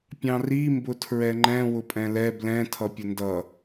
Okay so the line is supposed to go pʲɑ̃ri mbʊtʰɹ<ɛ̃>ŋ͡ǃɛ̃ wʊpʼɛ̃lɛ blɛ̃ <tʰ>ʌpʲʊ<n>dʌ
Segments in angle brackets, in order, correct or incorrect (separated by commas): incorrect, correct, correct